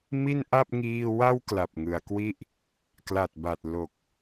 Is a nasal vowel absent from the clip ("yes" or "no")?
yes